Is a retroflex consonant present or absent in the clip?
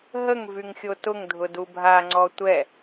absent